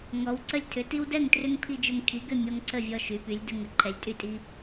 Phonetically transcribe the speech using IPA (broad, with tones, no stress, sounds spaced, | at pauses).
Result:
ŋ ɔ˨˦ w ǀ ə˦ lʲ tʰ ʏ˨˦ t i˦ w d ɛ˥˨ ŋ t r ʏ˦ ŋ pʰ i˦ d͡ʒ ʏ˦ ŋ kʰ i˨˦ ɡ ʏ˥˨ mʲ ɔ˦ ŋ ǀ ə˥˨ vʲ ɔ˦ ʃ y˨˦ p y˨˦ lʲ d ə˦ ŋ ə˨˦ ǃʰ ɛ˨˦ lʲ tʼ y˥˨ tʼ i˦